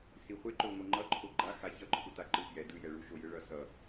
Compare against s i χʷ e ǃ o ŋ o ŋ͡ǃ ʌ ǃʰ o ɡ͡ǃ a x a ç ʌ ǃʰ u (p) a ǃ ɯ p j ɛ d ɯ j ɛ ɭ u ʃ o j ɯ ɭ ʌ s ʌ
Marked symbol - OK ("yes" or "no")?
no